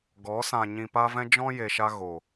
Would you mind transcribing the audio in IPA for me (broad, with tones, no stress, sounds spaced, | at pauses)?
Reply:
ɡ ɔ˨˦ s ã˨ ɲ ĩ˨ p a˧ v ɛ̃˦ d͡ʒ ɔ̃˦ j e˨ ʃ a˧ ɣ o˨